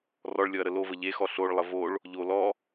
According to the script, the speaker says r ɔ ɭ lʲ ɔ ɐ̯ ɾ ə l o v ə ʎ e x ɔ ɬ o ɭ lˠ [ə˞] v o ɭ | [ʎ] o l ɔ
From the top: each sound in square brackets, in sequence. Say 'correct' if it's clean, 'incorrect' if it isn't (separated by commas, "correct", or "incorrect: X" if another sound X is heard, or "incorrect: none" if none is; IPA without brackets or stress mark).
incorrect: ə, correct